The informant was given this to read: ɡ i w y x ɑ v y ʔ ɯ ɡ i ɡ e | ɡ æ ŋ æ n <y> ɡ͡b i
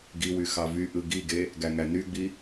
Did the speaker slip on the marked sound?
no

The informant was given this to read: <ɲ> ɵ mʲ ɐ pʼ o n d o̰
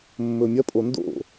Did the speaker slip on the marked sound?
yes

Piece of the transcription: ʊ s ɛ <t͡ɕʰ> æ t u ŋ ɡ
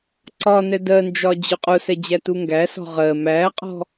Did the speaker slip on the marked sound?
yes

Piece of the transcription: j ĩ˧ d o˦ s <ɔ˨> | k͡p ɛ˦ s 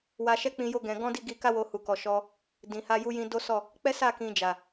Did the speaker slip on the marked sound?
yes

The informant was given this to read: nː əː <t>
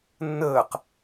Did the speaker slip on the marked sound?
yes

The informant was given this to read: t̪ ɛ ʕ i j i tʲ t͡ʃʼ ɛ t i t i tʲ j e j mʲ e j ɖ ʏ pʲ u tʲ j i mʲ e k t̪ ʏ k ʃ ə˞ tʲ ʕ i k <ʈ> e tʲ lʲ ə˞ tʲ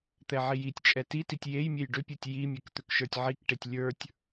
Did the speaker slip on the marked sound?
no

